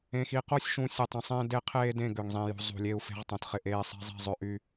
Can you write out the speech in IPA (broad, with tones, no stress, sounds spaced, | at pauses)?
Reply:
ẽ˨ x i˨ q o˦ sʲ ʃ ũ˨ sʲ e˨ tˤ ĩ˨ sˤ ẽː˦ d e˦ qʰ eː˦ d ẽ˦˨ ɡ ø˨ ŋ zˤ ĩ˨ j ṳ˨ zˤ ṳ˨ lʲ e˦ u̯ f e̤˦ ʁ tˤ õ˨ t χ ɪ˦ ʔ eː˦ sˤ e̤˦ zˤ i̤˦˨ zˤ ø˦ ʔ y˦